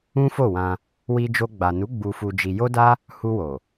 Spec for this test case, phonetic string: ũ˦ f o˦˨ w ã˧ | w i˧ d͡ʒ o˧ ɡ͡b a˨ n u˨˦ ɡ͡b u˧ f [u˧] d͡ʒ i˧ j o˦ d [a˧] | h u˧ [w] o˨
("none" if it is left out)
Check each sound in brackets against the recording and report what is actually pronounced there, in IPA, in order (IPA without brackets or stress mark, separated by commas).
u˧, a˦, w